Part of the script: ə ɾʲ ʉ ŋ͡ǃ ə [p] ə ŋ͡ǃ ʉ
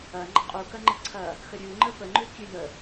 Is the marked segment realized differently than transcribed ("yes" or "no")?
no